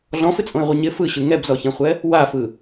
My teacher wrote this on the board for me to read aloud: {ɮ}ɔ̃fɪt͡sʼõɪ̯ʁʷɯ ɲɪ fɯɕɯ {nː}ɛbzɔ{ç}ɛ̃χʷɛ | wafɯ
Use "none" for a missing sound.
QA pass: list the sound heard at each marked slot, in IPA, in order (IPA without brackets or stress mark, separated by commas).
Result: ɮ, ŋ, ç